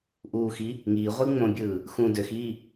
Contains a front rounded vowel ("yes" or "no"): yes